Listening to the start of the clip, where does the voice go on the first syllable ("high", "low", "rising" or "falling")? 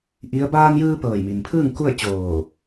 rising